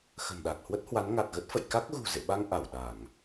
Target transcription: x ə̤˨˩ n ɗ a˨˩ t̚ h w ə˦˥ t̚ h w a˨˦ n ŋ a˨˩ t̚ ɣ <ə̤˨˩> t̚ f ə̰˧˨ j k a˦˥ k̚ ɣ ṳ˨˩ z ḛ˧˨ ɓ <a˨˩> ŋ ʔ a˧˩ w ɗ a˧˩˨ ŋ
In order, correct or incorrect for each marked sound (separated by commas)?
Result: incorrect, incorrect